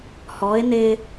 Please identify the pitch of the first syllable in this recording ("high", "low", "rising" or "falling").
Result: rising